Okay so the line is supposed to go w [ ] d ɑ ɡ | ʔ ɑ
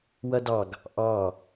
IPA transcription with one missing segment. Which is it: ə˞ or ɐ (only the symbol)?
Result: ɐ